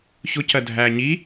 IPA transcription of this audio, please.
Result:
ç ʊ c ɜ dʱ æː ɲ i

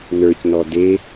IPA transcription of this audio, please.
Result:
n ə˞ c n ɔ d e

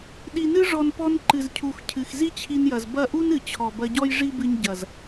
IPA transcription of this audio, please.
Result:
ɗ i˨ n ɨ˧ ʐ ɔ˨ n p ɔ˧ n ǃ ɨ˨ z cʰ u˨ x cʰ ɨ˨ x z i˦ t͡ɕʰ i˧ n j ɐ˨ z b ɐ˦˨ ʔ u˦ n ɨ˨ t͡ɕʰ ɔ˨ b ɐ˧ ɟ ɔ˦ j ʐ i˦ b ɨ˧ ɲ ɟ ɐ˨ z

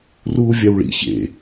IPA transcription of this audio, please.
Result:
r uː vʲ a w ɭ ḭ ç ḛ

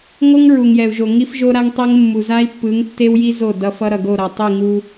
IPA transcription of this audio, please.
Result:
ŋ o˦ ŋ ɹ u˨ ŋ j ɛ˨ u̯ ʒ o˨ ŋ i˦ f ʒ o˦ ɾ a˦ ŋ tˤ e˦ ŋ mː u˨ z a˦ i̯ pː ɯ˨˦ ŋ tː e˦ w j i˦ z o˦˨ d ʌ˦ f ʌ˦ ɾ ʌ˨ ɡ o˦˨ ɾ ʌ˨ tˤ i˦˨ ŋ u˦

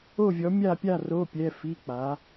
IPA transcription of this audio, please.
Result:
o˥˨ vʲ ɔ˨˥ mʲ a˥˨ pʲ a˥˨ r o˧˥˧ pʲ ɛ˧˥˧ f i˧˥˧ k͡p a˨˥

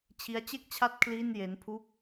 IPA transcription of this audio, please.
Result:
t͡ɕʰ i˦˥ a̯ t͡ɕ e˥˩ k̚ t͡ɕʰ a˥˩ t̚ kʰ l iː˥˩ n j e˦˥ n pʰ u˥˩ k̚

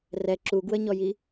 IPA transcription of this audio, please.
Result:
r ɛ ǁ u ɡ w ə ɲ ɔ j i

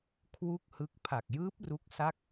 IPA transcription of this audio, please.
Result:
kʰ w u˥˩ k̚ h ɯ˦˥ k̚ pʰ a˨˩ k̚ j ɯː˦˥ p̚ r u˦˥ k̚ s a˥˩ k̚

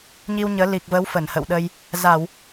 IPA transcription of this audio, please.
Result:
ɲ i˧ w ɲ əː˨˦ l i˨˩ k̚ v ə˨˦ w f ə˧˩ n h ə̰˧˨ w ɗ ə˧ j | z a˧˩˨ w

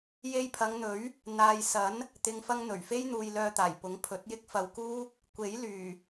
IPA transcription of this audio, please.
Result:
j e˧ j pʰ ɐ˨˧ ŋ n̪ ɵ˨˥ ɥ | n̪ aː˨ j s ɐ˨˥ n | t̪ ɪ˨ ŋ f ɐ˧ ŋ n̪ ɵ˨˩ ɥ f e˥ j n̪ uː˧ j l œː˧ t̪ aː˨˩ j p ʊ˨˥ ŋ pʰ ɵ˨˥ t̚ j ɪ˥ k̚ f ɐ˧ w k uː˥ | kʷ e˨˥ j l yː˨˩

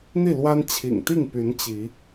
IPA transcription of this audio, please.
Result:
n̪ i˥˨ l w a˦ n t͡ɕʰ ḭ˨˩ ŋ t̪ i˥˨ ŋ p y˨˦ n t͡ɕ i˨˦

